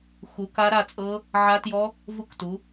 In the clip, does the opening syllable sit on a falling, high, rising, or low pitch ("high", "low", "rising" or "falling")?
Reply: rising